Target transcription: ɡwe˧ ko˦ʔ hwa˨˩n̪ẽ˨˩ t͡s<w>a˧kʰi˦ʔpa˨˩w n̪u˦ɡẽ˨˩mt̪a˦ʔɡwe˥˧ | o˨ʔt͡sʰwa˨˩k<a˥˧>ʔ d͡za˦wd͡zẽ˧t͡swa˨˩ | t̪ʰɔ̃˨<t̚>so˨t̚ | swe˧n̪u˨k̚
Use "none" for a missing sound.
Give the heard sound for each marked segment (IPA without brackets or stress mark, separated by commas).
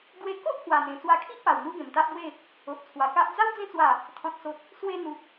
w, a˦, t̚